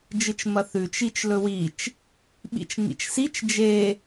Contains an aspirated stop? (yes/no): no